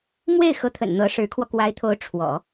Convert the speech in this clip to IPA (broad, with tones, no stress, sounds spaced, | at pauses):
m w e˥˩ ɪ̯ x ɤ˧˥ t̪ʰ ə̰˨˩ n n̪ ɤ˧˥ ʂ ɻ̩˧˥ kʰ w ɔ˧ k w a˧˥ ɪ̯ t̪ʰ o˧˥ ʊ̯ ʈ͡ʂʰ w ɔ̰˨˩˦